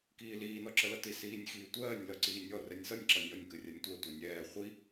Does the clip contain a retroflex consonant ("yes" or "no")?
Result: no